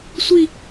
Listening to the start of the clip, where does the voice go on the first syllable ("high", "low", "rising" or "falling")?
falling